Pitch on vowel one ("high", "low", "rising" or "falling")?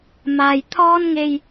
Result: low